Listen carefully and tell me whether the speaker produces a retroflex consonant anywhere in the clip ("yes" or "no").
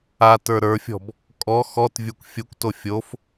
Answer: no